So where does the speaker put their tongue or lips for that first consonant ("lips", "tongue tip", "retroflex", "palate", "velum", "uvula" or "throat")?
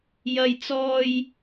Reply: palate